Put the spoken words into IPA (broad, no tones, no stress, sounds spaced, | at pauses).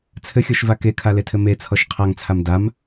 t͡sʰ ɘ xʲ ɔ ʃ v a k e kʰ a l e tʰ ɘ m e t͡sʰ ɔ ʃ qʰ a ŋ t͡sʰ a m d a m